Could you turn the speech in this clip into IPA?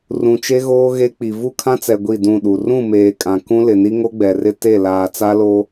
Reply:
r ũ˨ t͡ʃ e˦ ɣ oː˦ ɣ e˦ k͡p i˨ v u˦ kʰ ã˦ t͡s ɛ˨ ɡʷ i˦˨ d ũ˦˨ ɗ u˨ r ũ˦˨ m eː˨ kʼ ã˨ k ũ˦ l ɪ˨ n i˦ ŋ o˦ ɡ͡b ɛ˨ r ɪ˦ t e˦˨ l aː˨ t͡s a˦ l o˦

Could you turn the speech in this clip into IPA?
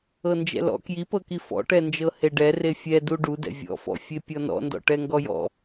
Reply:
ɤ n d͡ʒ ɛ̰ l ɔ̰ k j i p ɤ k i f ɔ̰ ʈ ɛ n d͡ʒ ɤ h e ɖ ɛ r e fʲ ɛ d u ɖ u d ɛ̰ vʲ ɔ̰ f ɔ̰ fʲ e pʲ ɔ n ɔ̰ n d ɔ̰ ʈ ɛ ŋ ɡ ɔ j ɔ̰

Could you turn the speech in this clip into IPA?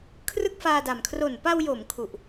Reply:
kʰ r ɯ˥˩ k̚ f aː˧ d a˨˩ m kʰ r o˨˩ n p a˧ w j o˩˦ m kʰ u˨˩ ʔ

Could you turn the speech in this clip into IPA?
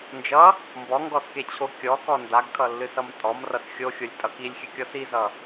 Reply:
n d͡ʒ ʌ | m b ɔ ŋ ɡ ɔ s k e t͡ɕʰ o kʲ ɔ k ɔ n d a ɡ kʰ ʌ lː ɨ s ʌ m tʼ ɔ m r ʌ s xʲ o xʲ o lʲ tʼ ʌ k i lʲ xʲ ɨ kʲ ɔ s i z ʌ

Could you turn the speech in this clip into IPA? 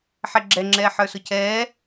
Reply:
ħ ɛ ɡ͡ǁ ɛ ŋ͡ǁ ɛː ħ ə˞ s ʊ cʰ ɛː

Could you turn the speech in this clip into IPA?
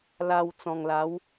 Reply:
l a˨˩ w t͡s ɔ̃˨˩ ŋ l a˨˦ w

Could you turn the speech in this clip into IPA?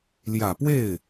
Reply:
l j ä˨˩ p w e˥˩ ɪ̯

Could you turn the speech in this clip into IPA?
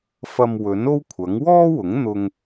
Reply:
f ɐ˧ m w ɵ˨˥ n o˥ w kʷʰ ɐ˨˥ ŋ w ɔː˥ w ʊ˨˥ ŋ n̪ ʊ˥ ŋ

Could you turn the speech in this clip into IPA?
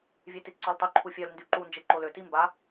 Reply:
vʲ e t i t ǀ ɔ l tˤ y ǃʰ u fʲ œ l n d y ǃ u n d͡ʒ e ǃ o l ø t i m b a

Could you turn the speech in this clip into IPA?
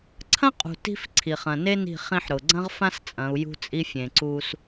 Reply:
ǀʰ ɐ̃˦ qʼ ṳ˨ t i̤˦ f ǀʰ i˨ χ ɐ̃˨ n e˦ n i̤˦˨ χ ĩ˦ ħ ɾ ʊ˨ ɡ͡ǀ ɐ̃˦ ʁ f ã˦ s t͡sʼ ɐ̃˨˦ u̯ j ṳ˦ t͡sʼ i˦ fʲ ẽ˨ ǀ u˦ s

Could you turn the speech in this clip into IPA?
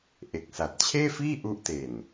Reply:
ʔ e˨˩ k̚ s a˨˩ t̚ t͡ɕʰ eː˥˩ f iː˥˩ ʔ u˦˥ ʔ t e˨˩ n

